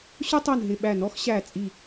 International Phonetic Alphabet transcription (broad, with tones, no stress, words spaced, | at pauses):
ɕʊ˥tˤu˧˩nɦɪ˧˩ ɓæ˧˩nɔ˥xɕæ˧˩t͡sʼi˧˩